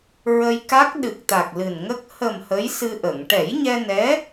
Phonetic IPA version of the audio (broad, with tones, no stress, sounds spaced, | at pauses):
ɹ ə˧ j k a˦˥ k̚ ɗ ɨ˨˩ k̚ t̪ a˨˩ k̚ l ɨ˨˩ n ŋ ə˦˥ k̚ h ə˨˩ m h ə˧˥ j s ɨ˧ ʔ ə˨˩˨ ŋ ʈ ɛ˨˩˦ j ɲ ɛ˧ n ɛ˧˥